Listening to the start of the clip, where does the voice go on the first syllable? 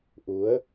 rising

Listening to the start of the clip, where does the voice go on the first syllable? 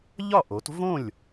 falling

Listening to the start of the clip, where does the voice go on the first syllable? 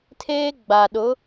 high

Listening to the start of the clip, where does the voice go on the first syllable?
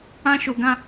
high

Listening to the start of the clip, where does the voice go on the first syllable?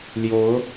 rising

